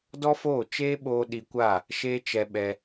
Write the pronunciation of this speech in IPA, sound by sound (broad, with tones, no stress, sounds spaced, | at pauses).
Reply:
d ɔ˦ f oː˦˨ t͡ʃ eː˦ ɓ oː˧ ɗ i˧ kʷ a˦˨ | ʃ eː˦ t͡ʃ ɛ˧ ɓ ɛ˧